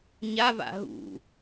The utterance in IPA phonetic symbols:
ɲ a v a̰ ɦ ṵ

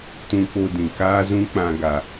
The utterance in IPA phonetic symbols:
t ũ˧ k͡p o˧ d ĩ˨ k aː˦ z ũ˦ k͡p ã˧ ɡ a˨

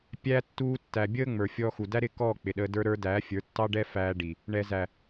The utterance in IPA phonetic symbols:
pʲ æː˧ tː uː˧ tː æ˨ bʲ əː˦ ŋ͡m ə˞˨ fʲ ɔː˧ x u˨ d æ˦ ɾ ɪː˦ k ɔː˦˨ k͡p ɪ˨ ɗ ə˧ d ə˞˧ ɾ ə˞˧ d æː˨˦ fʲ ə˞˨˦ tː ɑ˦ ɖ ɛ˦ f æː˧ ɖ i˨ | ɳ ɛ˧ z æ˨

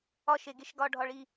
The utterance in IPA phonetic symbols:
ɒ ʃ e ɡ e ʃ ɡ ɒ ɖʱ ɒ ɭ i

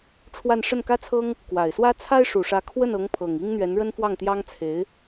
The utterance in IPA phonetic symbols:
ʈ͡ʂʰ w a˥˧ n ʂ ə˥˩ n k ä˥ t͡sʰ ɤ˥ ŋ | k w a˨˩ ɪ̯ s w ä˥ t͡sʰ a˥ ɪ̯ ʂ u˨˩ ʂ ä˧˥ kʰ w ə˥˩ n ɤ˧˥ ŋ pʰ ɤ˨˩ ŋ i˥ ŋ n̪ ɥ ɛ˧˥ n ɻ ə˥ n f w ɑ˥˩ ŋ t̪ j ɑ˥ ŋ t͡sʰ e˧˥ ɪ̯

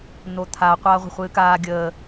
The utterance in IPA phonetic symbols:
n̪ o t̪ʰ a qʷ aː ʁʷ ə̤ χʷ ɨː k aː ɡʲ əː

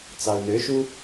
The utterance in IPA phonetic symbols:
t͡s ɑ u̯ n ø ʃ u

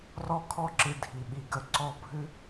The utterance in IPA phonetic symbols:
r ɔ˦ kʰ ɔ˦ ǁ ɨ˧ dʱ i˨ ɓ i˨ ɡ ə˧ ǀ ɔ˧ bʱ ɨ˦

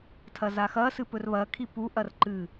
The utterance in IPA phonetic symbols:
tʰ ɐ z a x ɐ s ɨ p ɵ r β ɐ kʰ i p u ʔ ɐ r ǃ ɨ

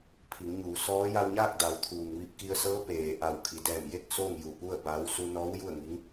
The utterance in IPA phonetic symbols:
pʰ i˩˧ ŋ ɲ uː˩˧ s ɔː˧˥ j a˧ w ɲ aː˥˨ k̚ d a˩˧ w t̪ʰ uː˩ ŋ ʋ i˧ p̚ k i˧ ə̯ s ɤː˧˥ p eː˩ ʔ a˧˩ w kʰ i˩˧ d ɛː˧˩ m j e˥˨ k̚ s oː˥˨ ŋ j u˧˩ p u˥˨ ə̯ b aː˧˥ w s u˧ n ɔː˧˥ w j u˥˨ ə̯ ŋ i˧˥ ŋ

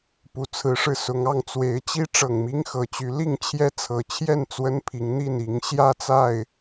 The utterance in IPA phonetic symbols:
p u˨˦ t͡sʰ ɹ̩˨˦ ʂ ɻ̩˧ s ʊ˨˦ ŋ ɑ˥˨ ŋ t͡s w e˨˦ ɪ̯ t͡ɕ i˦ ʈ͡ʂ ɤ˨˩ ŋ m i˦ ŋ x ɤ˨˦ t͡ɕ y˨˦ l i˥˨ ŋ t͡ɕʰ j ɛ˦ t͡sʰ ɤ˨˩ t͡ɕʰ j ɛ˥˨ n t͡s w ə˦ n pʰ i˨˦ ŋ n̪ i˥˨ n i˨˦ ŋ ɕ j ä˥˨ t͡s a˥˨ ɪ̯

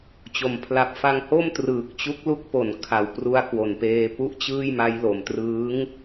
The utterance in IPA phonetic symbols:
t͡ɕ o˩˦ m pʰ l a˨˩ p̚ f a˧ ŋ h o˥˩ m t r ɯː˨˩ k̚ t͡ɕ u˦˥ k̚ l u˦˥ k̚ p o˨˩ n kʰ a˨˩ w p r u˦˥ a̯ k w o˨˩ n p eː˧ p u˥˩ ʔ t͡ɕ ɯː˥˩ j m a˦˥ j l o˨˩ m t r ɯː˦˥ ŋ

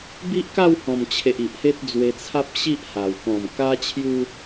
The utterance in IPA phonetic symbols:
b i˦ ʔ k a˥˧ w h ɔ̃˨˩ m t͡ɕʰ e˨ ʔ i˨ ʔ h e˦ t̚ d͡z w e˧ t͡sʰ a˦ p̚ ɕ i˦ ʔ h a˨˩ w k ɔ̃˨˩ m k a˧ t͡ɕʰ j u˧

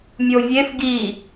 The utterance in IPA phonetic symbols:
mʲ o vʲ e f ɡ i

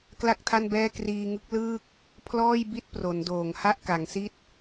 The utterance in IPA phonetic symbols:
k l a˥˩ k̚ tʰ a˥˩ n b ɛː˥˩ k r iː˧ ŋ ɯ˦˥ k̚ l ɯː˥˩ k̚ | pʰ l ɔː˥˩ j b i˥˩ t̚ p r o˩˦ n d oː˨˩ ŋ h a˥˩ ʔ k a˩˦ ŋ s i˥˩ t̚

